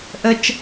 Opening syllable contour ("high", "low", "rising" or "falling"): low